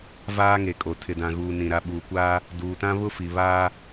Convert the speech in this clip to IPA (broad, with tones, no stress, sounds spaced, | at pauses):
v aː˦ ŋ e˨ kʼ o˨ tʰ ɪ˨ d ã˨ ɣ uː˨ n ĩ˨ ɾ a˨ ɓ uː˨ kʷ aː˦ | d uː˨ t ã˦ β ʊ˦ f i˨ β aː˦